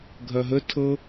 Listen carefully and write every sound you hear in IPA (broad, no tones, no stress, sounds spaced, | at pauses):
ɡʱ ɐ ɦ ə tʰ ɤ